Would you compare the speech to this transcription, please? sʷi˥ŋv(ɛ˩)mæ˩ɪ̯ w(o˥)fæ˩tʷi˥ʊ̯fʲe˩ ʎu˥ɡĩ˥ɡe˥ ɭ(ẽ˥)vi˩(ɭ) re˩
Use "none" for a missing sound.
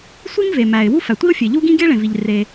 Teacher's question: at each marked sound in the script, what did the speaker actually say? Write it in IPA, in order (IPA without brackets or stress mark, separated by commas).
e˩, u˥, ẽ˩, ʎ